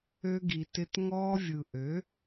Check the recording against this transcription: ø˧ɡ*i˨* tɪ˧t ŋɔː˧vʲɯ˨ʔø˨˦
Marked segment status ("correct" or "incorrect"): correct